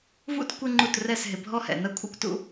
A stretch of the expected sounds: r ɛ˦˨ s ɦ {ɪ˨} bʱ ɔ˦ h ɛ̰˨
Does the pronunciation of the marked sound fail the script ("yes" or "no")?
no